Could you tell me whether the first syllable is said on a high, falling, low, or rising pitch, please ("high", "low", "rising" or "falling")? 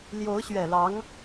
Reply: rising